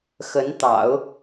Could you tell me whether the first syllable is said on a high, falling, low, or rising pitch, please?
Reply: rising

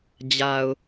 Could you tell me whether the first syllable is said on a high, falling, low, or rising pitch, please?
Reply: low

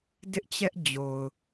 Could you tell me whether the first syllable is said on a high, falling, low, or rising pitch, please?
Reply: high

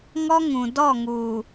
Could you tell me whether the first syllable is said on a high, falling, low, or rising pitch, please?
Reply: high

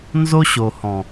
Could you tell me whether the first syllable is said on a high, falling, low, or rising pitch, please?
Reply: high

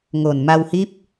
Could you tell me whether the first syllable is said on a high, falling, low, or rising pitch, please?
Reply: low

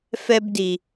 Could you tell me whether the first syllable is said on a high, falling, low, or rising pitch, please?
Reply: high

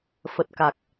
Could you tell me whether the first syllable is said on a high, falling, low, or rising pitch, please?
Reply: low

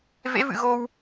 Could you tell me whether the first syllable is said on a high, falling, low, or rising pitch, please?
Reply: rising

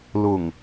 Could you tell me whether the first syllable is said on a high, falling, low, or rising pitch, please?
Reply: low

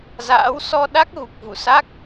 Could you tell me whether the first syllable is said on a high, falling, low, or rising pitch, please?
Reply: rising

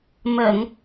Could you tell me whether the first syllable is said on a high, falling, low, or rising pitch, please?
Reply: low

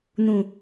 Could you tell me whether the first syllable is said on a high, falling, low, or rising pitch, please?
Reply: low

